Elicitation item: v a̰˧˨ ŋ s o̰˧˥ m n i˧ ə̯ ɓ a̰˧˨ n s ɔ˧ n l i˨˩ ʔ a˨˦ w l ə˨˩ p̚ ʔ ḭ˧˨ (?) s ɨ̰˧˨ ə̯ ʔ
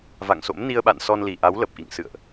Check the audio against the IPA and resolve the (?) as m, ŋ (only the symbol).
ŋ